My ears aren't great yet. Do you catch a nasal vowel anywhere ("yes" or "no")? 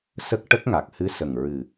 no